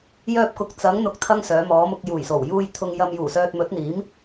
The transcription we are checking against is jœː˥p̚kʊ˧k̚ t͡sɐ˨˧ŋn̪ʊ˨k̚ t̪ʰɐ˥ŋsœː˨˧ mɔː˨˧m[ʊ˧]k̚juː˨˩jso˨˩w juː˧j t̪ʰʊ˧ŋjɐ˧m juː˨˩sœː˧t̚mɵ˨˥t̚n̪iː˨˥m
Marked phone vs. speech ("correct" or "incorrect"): correct